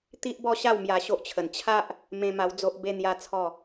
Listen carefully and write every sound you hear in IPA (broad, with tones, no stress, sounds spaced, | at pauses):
t̪ i˦ ʔ b ɔ˥˧ ɕ a˥˧ w m j a˧ ɕ o˦ ʔ t͡ɕʰ ə˨˩ n t͡ɕʰ a˦ ʔ | m ẽ˧ m a˧ w d͡z o˦ ʔ b e˦ n̪ j a˦ t͡sʰ ɔ˥˧